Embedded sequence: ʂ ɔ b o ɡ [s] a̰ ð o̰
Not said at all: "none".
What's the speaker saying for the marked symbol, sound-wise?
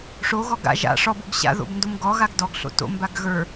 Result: ɕ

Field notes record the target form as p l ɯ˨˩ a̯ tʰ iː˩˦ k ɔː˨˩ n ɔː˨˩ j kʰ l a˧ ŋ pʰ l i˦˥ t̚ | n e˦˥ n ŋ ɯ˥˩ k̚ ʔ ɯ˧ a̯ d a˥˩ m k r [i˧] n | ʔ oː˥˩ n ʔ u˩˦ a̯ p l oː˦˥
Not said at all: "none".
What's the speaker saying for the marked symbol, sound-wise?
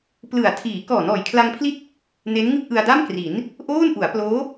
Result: i˩˦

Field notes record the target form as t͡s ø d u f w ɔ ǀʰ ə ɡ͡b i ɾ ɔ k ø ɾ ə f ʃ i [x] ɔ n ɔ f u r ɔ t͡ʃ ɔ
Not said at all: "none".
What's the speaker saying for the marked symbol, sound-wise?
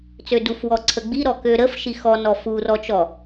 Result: x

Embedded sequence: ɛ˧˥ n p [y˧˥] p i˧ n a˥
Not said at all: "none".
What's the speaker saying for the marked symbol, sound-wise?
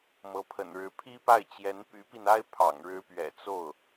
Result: y˧˥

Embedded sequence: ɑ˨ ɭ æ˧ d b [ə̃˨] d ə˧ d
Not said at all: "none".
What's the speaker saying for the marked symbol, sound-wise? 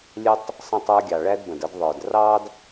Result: ə̃˨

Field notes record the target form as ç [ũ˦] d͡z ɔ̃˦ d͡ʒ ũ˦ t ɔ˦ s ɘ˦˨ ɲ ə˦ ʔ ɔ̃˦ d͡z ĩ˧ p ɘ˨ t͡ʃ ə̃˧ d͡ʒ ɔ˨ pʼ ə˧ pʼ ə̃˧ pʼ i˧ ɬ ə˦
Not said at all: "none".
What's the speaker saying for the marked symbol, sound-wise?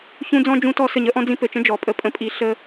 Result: ũ˦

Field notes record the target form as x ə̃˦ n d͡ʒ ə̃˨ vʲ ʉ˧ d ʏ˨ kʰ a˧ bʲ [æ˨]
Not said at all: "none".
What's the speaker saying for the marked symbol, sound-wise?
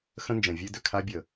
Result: ə˨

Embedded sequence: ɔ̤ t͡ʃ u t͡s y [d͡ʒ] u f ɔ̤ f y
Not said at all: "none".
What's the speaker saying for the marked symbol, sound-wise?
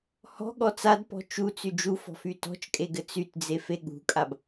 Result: d͡ʒ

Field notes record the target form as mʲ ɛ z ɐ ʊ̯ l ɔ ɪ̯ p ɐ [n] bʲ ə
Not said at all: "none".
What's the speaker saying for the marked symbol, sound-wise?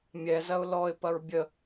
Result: ɹ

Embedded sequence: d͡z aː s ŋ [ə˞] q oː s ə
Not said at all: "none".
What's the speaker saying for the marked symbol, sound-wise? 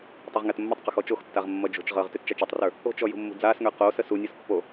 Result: ə˞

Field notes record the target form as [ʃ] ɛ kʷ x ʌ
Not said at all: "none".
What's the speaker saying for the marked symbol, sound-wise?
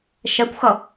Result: ʃ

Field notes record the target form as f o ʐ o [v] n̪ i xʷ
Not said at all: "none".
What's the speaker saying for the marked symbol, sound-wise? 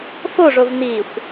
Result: v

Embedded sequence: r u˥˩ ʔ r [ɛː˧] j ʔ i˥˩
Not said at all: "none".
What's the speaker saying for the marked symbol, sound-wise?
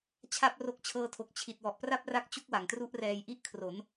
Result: ɛː˧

